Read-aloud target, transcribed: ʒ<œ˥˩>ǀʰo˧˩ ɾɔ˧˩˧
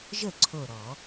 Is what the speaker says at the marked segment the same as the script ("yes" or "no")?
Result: no